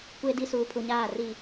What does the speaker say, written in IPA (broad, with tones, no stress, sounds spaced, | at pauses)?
kʷ e˨ d i˨ s uː˨ pʰ u˨ ɲ aː˦˨ r i˨